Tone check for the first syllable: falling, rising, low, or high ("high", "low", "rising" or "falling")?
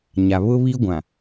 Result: low